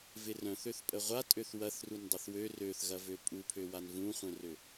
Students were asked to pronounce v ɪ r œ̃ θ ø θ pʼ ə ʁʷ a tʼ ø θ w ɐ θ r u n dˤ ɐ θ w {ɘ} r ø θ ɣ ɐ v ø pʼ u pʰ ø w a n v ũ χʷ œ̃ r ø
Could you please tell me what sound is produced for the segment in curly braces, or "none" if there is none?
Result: ø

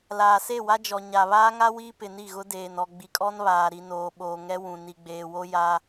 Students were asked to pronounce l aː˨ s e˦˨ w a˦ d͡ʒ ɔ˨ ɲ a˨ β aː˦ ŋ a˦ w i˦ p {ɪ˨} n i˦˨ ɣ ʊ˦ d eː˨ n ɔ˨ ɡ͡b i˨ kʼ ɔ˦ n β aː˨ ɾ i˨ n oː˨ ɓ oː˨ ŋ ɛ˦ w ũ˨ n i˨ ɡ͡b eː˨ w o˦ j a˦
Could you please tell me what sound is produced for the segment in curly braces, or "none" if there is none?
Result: ɪ˨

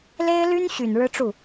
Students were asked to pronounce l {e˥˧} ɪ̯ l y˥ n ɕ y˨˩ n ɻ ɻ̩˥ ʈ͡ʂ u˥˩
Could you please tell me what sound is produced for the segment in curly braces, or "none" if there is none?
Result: e˥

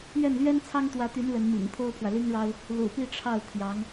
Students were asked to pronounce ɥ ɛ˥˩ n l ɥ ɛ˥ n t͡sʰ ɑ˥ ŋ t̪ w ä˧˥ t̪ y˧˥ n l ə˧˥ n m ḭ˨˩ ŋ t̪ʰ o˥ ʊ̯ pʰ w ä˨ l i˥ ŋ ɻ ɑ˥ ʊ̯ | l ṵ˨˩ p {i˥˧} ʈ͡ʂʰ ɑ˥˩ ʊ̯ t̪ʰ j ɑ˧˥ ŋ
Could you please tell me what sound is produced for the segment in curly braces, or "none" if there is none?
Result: i˥˧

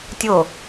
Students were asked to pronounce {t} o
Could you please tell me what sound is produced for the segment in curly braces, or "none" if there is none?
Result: tʲ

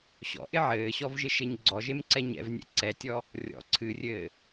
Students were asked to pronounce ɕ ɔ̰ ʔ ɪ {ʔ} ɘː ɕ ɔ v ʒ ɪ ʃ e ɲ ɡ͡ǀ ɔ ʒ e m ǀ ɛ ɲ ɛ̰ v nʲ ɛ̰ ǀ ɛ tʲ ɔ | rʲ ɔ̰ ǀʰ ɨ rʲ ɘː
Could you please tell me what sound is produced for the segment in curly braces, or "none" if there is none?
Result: ʕ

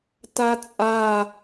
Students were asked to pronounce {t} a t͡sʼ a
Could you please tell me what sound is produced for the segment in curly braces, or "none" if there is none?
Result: t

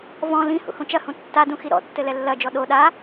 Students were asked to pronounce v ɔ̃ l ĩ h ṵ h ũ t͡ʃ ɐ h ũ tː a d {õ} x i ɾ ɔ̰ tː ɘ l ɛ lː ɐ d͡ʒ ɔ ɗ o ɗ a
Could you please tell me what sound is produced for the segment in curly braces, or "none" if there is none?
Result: ũ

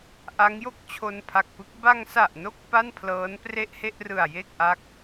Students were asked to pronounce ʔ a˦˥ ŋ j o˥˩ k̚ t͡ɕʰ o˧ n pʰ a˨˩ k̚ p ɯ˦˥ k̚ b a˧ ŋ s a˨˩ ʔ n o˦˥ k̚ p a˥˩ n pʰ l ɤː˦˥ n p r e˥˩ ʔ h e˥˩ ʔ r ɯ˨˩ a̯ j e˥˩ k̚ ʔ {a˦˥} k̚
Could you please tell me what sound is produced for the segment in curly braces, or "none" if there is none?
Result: a˦˥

